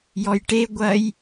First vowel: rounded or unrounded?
rounded